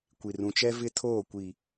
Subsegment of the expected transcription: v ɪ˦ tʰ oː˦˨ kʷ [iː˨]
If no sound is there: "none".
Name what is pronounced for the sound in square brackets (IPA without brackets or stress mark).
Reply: i˨